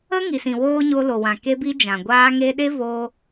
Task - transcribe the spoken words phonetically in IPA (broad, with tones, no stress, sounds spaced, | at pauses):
ə˦ ŋ i˨ s ĩ˨ w oː˦ ɲ o˧ l o˨ w ã˨ k e˧ b i˧ d͡ʒ ã˨ ɡʷ aː˧ ŋ e˧ ɗ e˦ v o˧